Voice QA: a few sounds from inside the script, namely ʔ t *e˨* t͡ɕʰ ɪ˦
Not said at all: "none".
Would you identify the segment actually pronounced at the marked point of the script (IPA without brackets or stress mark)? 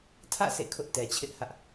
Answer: ɛ˨